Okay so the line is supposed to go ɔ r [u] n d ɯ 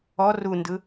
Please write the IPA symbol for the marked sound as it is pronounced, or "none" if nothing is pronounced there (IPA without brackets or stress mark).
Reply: u